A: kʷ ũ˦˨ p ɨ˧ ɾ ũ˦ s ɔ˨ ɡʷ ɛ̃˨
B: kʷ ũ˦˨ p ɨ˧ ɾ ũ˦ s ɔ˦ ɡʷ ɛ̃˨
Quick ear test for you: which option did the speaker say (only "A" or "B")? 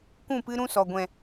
A